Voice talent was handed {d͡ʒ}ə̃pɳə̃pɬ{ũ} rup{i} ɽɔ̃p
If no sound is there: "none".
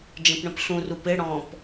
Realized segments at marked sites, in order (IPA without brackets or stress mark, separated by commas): d͡ʒ, ũ, ɪ